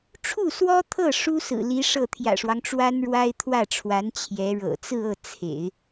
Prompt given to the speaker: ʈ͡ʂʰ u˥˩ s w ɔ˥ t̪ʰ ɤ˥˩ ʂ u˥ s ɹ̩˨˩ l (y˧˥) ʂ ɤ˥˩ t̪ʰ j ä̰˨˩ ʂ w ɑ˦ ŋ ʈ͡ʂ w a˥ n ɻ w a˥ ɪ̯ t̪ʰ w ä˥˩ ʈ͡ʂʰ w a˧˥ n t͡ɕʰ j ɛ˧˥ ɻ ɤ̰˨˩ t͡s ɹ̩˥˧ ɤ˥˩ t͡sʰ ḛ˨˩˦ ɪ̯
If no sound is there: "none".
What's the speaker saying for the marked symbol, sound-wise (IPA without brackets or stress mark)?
i˧˥